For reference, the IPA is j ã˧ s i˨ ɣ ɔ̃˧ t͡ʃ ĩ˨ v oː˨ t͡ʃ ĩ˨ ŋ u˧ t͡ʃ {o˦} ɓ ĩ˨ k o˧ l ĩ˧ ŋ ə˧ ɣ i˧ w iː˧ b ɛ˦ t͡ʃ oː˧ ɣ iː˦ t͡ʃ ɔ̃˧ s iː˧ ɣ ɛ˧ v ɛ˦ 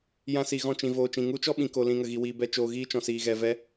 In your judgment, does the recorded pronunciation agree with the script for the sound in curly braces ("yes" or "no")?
no